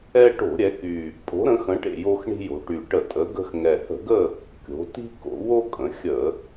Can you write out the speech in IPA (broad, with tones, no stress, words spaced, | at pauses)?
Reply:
ɛ˦ ʈo̤˧˩˧ ɾʲɛ˩˧ky˨˩ | pʼo̤˩˧ɾə̃˩˧xə̃˩˧ʈḛ˨˩ jo˦xɳi̤˦jo̤˩˧ ʈy˨˩ʈə˧˩˧ tʼə˩˧ ɡə̤˦x ŋɛ˨˩hə̤˧˩˧ɡə˦˨ | kʲo̤˩˧ ti̤˦ko̰˩˧wo˦ kʼə̃˩˧xʲə˧˩˧